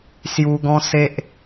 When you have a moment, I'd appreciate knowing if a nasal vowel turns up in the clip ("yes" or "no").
yes